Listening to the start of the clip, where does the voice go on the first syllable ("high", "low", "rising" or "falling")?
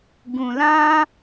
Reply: low